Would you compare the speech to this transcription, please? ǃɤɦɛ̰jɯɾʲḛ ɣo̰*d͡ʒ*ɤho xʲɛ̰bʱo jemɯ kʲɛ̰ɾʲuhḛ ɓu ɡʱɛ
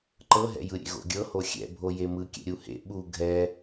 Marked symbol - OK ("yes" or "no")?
no